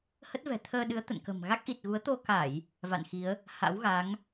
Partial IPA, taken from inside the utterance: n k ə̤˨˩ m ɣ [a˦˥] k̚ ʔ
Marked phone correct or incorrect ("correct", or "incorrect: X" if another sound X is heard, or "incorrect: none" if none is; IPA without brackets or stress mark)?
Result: correct